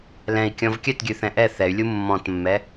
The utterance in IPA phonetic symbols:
l ɛ̃ i̯ kʲ ɔ̃ v kʲ œ t ɡʲ ʉ θ ɛ̃ ʔ ɛ θ ɛ y̯ lʲ u mː ɔ̃ t mː ɛ

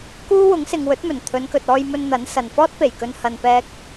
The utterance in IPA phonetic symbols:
k uː˥ w ʊ˨˥ ŋ s ɪ˨ ŋ w ɵ˨˥ t̚ m ɵ˨˩ n t̪ʰ ɵ˨˧ n k ɵ˨ t̚ ɔː˧ j m ɵ˧ n n̪ ɐ˨˥ n s ɐ˨ n f ɔː˥ t̚ p e˨˩ j k ɵ˧ n h ɐ˧ n p ɛː˥ k̚

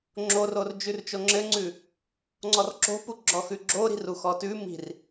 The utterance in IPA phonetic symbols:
ŋ͡ǁ o r o r d͡ʒ ʉ r t͡ʃ o ŋ͡ǁ ɘ ŋ͡ǀ ʉ | ŋ͡ǀ ɔ r ǁ o̤ p u ɡ͡ǁ ɔ x ʉ ɡ͡ǁ o ɾ i̤ r u x ɔ t ʉ m i̤ r

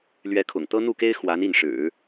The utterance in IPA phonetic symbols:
l ɥ ɛ˧˥ kʰ ʊ̰˨˩ ŋ t̪ ɤ˥ n̪ u˥˩ k e˥ ɪ̯ x w a˧˥ n i˥˩ n ʂ ɻ̩˨˩˦

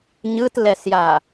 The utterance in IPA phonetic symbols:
ɲ ɯ t l ɛ s j a

